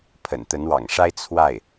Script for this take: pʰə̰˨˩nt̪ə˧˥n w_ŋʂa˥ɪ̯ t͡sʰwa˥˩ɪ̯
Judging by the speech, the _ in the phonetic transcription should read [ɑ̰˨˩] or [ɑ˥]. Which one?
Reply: ɑ̰˨˩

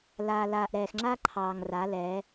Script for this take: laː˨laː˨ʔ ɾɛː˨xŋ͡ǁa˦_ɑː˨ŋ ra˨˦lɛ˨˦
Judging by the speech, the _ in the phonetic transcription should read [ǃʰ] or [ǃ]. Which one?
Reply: ǃʰ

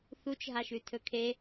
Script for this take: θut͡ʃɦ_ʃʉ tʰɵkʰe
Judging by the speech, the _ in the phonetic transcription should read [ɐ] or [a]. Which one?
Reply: a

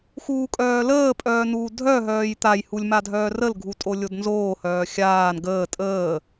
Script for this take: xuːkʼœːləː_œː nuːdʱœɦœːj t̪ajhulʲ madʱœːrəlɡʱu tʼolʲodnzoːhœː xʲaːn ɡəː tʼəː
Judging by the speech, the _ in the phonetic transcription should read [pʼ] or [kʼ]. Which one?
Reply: pʼ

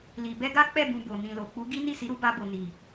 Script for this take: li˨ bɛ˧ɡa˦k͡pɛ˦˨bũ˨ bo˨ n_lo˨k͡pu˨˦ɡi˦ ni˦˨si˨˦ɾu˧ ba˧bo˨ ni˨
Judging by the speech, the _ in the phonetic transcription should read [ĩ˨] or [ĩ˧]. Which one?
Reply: ĩ˨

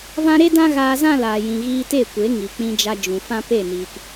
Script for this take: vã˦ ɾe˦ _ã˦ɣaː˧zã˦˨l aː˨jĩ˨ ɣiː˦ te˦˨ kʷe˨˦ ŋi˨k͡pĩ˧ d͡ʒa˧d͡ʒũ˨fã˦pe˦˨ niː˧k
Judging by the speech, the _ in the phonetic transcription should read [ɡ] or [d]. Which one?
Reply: d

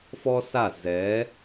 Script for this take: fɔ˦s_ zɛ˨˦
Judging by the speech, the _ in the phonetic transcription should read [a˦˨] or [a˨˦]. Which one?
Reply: a˦˨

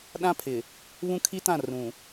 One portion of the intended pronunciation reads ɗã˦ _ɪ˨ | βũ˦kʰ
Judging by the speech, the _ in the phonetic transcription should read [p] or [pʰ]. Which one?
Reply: pʰ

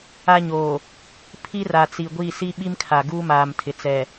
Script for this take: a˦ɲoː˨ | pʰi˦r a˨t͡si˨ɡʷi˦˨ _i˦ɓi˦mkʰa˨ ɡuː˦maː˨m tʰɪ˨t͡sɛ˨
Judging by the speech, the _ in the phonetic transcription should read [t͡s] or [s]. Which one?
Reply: s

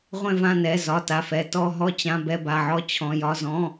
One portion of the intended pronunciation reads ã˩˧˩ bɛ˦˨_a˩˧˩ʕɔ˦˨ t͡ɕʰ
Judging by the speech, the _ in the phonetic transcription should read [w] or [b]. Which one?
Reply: b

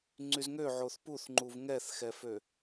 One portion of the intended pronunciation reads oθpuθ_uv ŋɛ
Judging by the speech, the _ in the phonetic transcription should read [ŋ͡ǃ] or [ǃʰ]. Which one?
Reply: ŋ͡ǃ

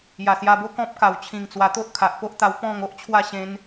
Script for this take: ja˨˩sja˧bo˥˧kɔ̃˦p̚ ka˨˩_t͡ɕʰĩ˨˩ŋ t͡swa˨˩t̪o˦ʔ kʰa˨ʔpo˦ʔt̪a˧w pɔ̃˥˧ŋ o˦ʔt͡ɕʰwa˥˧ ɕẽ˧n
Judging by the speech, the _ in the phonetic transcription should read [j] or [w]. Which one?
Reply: w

